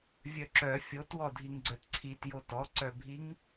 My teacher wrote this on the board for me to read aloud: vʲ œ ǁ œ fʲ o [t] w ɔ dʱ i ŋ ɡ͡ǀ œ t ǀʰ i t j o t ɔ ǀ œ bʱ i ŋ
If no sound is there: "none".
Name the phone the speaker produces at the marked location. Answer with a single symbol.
t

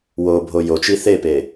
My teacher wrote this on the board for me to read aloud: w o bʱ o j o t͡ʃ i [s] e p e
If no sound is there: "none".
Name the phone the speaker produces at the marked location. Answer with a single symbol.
θ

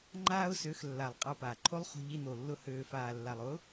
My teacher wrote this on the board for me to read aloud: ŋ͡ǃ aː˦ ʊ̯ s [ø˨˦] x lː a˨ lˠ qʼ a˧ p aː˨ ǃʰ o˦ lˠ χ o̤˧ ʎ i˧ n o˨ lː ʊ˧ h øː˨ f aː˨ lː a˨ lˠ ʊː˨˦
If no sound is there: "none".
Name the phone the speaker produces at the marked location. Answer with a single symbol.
ø˨˦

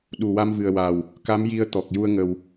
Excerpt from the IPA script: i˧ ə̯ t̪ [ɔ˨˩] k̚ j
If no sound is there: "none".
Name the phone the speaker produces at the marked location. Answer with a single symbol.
ɔ˨˩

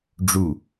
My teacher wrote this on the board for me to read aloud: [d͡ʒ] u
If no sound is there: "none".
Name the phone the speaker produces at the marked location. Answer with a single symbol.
ɖ͡ʐ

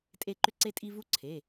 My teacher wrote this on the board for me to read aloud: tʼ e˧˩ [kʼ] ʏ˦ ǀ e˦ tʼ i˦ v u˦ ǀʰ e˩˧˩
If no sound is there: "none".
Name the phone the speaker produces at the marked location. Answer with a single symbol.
ǃ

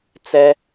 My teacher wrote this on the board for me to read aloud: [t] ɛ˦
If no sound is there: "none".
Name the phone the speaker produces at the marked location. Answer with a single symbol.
t͡s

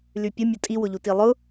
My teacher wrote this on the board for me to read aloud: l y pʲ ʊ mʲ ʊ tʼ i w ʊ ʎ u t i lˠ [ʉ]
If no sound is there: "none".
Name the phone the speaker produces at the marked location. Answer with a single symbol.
ʊ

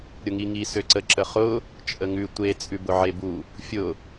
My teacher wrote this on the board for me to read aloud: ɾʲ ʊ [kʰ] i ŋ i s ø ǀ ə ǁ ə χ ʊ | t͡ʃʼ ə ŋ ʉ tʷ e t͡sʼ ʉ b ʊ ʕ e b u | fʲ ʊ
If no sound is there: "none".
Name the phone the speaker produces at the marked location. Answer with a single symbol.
ŋ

